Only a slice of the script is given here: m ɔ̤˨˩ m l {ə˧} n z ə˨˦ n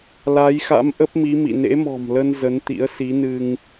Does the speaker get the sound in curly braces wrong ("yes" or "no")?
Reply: no